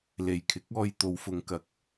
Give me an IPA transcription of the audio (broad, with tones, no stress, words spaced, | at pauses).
le˨˩jkʰɪ˨˥k̚ɔː˧j t̪o˨˧wfʊ˨˧ŋkɐ˨k̚